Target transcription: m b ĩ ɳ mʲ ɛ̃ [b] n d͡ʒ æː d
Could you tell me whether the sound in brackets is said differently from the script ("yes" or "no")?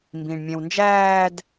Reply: yes